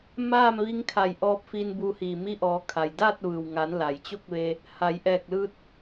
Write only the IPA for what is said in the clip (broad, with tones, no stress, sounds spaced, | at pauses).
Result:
m aː˥˨ m ʋ i˧ ŋ kʰ a˧˩ j ʔ ɔː˧ p̚ f i˧ n b u˧ h iː˧˩ m i˧ ʔ ɔː˩˧ kʰ a˩ j d aː˥˨ t̚ ʋ ɯː˩ w ŋ a˩˧ n l a˩ j t͡ɕ o˥˨ k̚ ʋ e˧ | h a˩˧ j ʔ ɛː˧˩ k̚ l ɯː˧ t̚